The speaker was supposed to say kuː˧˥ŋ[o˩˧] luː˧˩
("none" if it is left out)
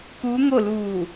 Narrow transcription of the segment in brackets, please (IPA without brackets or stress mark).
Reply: o˥˨